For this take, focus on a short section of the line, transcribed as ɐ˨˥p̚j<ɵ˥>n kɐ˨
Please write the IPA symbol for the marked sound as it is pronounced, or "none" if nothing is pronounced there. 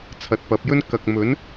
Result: ɵ˥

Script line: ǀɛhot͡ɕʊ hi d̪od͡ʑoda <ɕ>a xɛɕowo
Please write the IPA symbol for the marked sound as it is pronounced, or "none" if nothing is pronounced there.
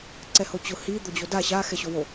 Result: ɕ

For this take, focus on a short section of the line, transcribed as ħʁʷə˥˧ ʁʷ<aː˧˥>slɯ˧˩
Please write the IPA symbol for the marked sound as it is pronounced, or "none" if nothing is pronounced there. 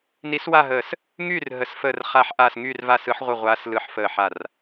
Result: aː˧˥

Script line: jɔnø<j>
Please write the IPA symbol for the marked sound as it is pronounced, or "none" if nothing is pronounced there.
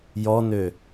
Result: none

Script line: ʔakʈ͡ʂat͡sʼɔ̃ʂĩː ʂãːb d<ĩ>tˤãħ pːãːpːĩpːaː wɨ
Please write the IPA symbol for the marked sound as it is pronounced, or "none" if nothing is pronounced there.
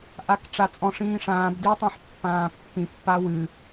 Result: i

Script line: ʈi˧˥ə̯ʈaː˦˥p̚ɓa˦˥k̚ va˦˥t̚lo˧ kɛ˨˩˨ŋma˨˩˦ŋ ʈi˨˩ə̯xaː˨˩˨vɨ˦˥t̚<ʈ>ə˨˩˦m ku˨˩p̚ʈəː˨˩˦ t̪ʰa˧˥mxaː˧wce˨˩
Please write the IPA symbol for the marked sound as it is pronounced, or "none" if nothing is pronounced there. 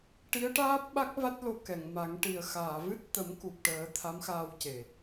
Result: t̪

